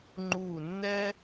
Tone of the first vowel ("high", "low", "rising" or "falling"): falling